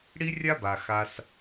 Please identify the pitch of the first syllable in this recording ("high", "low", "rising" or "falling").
high